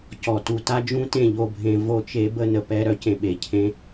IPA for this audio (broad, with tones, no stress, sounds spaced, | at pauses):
c ɔ˨ t u˨ t a˦ d͡ʒ ũ˦ t ẽ˦˨ ʎ o˦˨ bʱ ẽ˧ v o˧ t͡ʃ e˧ b ə˦˨ n ə˨ p ɛ˧ ɾ œ˧ c ẽ˨ ɓ e˨ cʰ ẽ˦